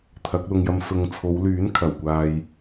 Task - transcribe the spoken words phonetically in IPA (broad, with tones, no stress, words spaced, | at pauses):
t̪ʰɐ˨˥k̚lʊ˧ŋjɐ˧m sʊ˨ŋt͡sʰo˨˧wlyː˨˥n kʰɐ˨˩wkʷaː˧j